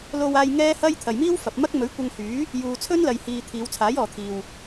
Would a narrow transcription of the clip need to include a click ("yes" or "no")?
no